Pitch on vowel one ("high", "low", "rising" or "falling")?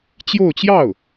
falling